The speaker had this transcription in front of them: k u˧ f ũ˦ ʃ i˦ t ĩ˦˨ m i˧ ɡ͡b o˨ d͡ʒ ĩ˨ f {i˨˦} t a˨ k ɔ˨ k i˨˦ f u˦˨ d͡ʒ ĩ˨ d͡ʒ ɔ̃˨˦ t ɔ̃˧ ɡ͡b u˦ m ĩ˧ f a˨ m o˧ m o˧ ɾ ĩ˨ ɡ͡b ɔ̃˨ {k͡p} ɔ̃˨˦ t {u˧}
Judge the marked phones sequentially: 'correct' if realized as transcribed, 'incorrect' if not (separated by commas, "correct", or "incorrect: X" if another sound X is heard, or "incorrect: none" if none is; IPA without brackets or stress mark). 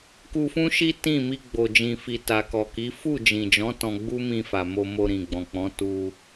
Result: incorrect: i˨, correct, correct